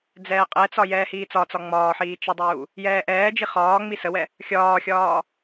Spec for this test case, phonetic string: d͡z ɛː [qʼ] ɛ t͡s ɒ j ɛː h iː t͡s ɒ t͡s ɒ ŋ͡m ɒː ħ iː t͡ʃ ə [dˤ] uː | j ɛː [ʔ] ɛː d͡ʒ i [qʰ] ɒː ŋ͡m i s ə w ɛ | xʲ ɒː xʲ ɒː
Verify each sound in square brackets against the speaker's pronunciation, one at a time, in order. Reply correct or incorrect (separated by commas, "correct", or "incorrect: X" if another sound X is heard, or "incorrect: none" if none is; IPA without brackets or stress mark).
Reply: correct, correct, correct, incorrect: χ